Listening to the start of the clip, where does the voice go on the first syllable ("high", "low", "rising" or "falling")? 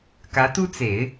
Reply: rising